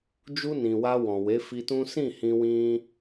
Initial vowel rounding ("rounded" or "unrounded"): rounded